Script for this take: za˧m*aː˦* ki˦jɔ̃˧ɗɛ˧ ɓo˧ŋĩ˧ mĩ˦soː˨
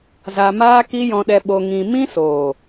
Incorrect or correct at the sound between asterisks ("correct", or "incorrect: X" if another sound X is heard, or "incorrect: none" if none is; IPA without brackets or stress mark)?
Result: correct